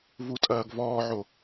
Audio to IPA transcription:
vutʼɐːɡvɔːʕo

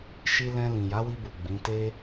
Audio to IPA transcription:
ʃi˧lɛ̃˧ lĩ˨ja˨˦wi˧bu˨ ɡ͡bĩ˨˦te˦

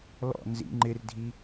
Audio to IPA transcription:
lɔ̰ nzḭ ŋ͡ǃɪrdʱi

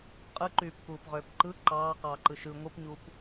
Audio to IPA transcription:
qʼɯǃyːpkuːpʁøːp ǃɯ ǃɑːqɑːǃɯ ʃɯ ŋʷɯpɲuːp

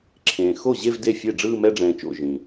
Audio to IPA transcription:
ǁʰẽː˨ xo˥˩ʑe˥˧v de˥˩ fʲe˥˩ɖ͡ʐɯː˥˧ mɛ˥˧ɖ͡ʐɛ̃ː˨t͡ʃo̰˥˩ ʒĩ˨

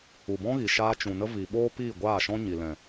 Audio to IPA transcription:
u˨bɔ̃˦ɣi˨ ʃaː˧t͡ʃũ˨nə˦ vi˨ɓoː˦ piː˦˨ɡʷaː˦˨ʃɔ̃˦ ɲi˨lɛ̃˨

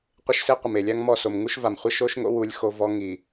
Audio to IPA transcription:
qʷɪ˦ʃse˦ qʷɪ˨me˨lʲa˦ŋ mɔ˦˨so˨m ŋu˦ʃva˨mχʷɪ˦ ʃo˦ʃŋo̰˦ wu˦lʲxo˦vɔ˦ ŋi˨

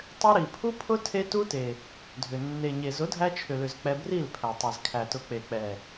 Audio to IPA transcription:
tˤʏ˧ ɾi˨pʰu˦pʰʊ˦ tʰe˦tu˦te˨ | dʱʏ˨ nːe˨ɲe˨ zʊ˨˦dʱæ˧t͡ʃʰʏ˨lʏ˨z k͡pɛ˧bri˦˨lpʰæ˨tˤi˨z kʰæ˨tʊ˨˦k͡pe˨ k͡pɛ˨

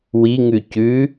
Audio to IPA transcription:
wiŋʉ cʉ

